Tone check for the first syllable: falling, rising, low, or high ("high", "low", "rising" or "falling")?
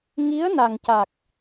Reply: rising